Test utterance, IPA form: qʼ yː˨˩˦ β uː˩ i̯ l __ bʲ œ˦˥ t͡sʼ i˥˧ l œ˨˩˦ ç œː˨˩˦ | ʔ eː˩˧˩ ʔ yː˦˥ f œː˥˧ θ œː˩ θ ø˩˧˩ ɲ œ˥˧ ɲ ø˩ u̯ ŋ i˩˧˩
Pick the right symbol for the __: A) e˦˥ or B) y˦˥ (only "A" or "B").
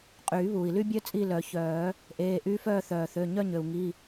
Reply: B